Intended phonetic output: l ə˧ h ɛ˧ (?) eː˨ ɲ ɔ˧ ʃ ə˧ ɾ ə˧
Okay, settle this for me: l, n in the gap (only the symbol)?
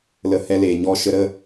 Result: l